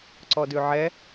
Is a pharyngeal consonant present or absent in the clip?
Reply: present